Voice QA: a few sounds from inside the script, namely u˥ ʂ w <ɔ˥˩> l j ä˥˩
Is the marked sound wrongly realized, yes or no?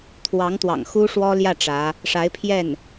yes